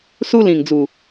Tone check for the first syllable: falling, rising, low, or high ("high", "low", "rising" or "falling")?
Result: high